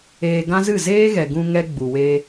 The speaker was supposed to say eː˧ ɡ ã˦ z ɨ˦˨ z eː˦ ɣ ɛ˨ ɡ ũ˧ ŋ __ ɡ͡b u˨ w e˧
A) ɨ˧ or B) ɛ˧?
B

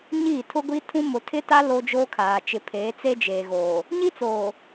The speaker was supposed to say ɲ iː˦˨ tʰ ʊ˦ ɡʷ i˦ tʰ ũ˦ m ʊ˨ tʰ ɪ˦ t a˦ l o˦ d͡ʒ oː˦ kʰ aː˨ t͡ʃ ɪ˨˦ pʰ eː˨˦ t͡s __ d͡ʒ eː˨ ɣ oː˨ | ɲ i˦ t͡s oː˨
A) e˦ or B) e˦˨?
A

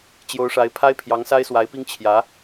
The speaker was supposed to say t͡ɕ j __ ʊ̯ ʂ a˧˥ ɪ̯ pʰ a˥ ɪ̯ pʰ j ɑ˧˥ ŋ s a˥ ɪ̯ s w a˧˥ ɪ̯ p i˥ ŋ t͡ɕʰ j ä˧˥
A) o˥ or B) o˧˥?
B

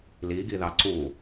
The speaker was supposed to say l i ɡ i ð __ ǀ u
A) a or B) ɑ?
B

